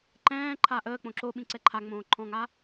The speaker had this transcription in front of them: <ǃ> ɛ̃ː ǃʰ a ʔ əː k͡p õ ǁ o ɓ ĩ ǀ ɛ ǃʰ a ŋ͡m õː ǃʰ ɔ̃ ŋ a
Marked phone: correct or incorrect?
correct